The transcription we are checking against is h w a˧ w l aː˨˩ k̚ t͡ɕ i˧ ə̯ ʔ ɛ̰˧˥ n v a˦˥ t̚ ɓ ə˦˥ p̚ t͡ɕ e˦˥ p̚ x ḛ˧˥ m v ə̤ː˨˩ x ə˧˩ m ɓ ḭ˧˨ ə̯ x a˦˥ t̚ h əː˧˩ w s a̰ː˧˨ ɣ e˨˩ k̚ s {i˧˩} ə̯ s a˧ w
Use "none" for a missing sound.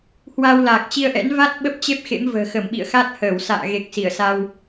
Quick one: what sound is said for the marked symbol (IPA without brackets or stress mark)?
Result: i˧˩